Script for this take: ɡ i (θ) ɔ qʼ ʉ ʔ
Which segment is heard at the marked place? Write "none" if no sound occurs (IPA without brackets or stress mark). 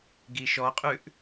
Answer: ʃ